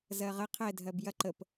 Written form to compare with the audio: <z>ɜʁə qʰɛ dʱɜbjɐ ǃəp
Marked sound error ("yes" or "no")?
no